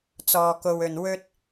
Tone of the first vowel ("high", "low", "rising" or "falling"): low